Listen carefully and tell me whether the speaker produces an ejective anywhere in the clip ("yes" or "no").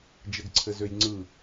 no